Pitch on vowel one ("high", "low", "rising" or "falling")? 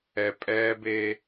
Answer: low